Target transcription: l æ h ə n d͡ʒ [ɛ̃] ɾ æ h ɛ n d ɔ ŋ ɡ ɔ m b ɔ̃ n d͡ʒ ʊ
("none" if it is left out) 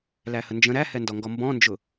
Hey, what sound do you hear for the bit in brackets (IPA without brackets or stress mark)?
ə̃